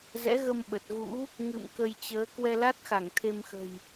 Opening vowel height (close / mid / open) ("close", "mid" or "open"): mid